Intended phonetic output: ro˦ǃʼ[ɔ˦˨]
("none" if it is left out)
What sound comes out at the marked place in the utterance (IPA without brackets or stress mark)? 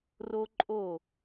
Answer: o˦˨